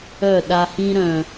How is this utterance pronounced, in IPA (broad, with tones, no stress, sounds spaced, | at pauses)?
œ˦˨ ɗ a˧ h ĩ˧ ɾ œ̃˨